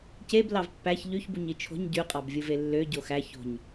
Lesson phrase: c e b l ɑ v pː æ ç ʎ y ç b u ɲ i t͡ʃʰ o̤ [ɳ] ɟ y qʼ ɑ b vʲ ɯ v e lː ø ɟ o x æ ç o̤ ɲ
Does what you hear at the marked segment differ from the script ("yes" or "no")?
yes